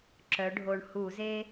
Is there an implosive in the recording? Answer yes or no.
no